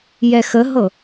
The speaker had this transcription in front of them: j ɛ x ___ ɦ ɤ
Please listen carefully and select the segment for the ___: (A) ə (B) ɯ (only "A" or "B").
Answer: A